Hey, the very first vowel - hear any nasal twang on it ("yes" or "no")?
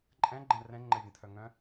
yes